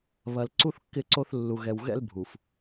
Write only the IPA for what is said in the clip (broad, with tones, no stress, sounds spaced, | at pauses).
β ɐ˨ l ǀ u˦ θ kː ɪ˦˨ ǀ o˦ θ lː u˨ ɣ ɛ˨ w ɣ ɛ̰˦ l bʱ u˨ f